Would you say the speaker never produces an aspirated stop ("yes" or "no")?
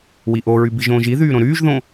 yes